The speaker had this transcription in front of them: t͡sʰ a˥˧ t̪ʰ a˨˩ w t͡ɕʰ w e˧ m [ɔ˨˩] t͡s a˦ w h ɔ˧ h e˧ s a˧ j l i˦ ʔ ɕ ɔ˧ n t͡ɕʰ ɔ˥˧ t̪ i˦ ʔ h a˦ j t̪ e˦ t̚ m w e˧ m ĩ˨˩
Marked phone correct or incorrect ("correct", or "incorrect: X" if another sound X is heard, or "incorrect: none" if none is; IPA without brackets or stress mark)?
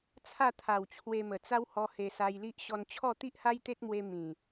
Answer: incorrect: ə˨˩